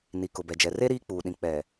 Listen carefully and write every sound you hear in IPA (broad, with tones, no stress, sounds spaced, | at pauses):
n i˨ k ʊ˨ b ɛ˨ d͡ʒ ɛ˨ r e˦ ɾ iː˦ k͡p uː˨ ɗ ĩ˨ k͡p ɛ˨